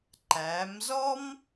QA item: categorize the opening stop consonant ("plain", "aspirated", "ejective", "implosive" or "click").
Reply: click